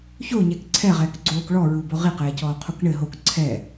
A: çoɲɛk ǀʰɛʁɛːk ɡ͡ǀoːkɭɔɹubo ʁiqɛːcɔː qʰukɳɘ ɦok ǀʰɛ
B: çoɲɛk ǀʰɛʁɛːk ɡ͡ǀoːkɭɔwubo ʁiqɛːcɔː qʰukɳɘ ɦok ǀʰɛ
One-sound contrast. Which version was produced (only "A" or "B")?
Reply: A